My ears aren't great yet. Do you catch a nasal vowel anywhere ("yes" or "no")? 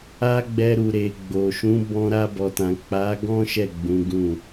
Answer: yes